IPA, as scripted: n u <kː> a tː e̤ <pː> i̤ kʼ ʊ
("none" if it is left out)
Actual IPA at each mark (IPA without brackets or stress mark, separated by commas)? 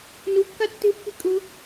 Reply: kː, pː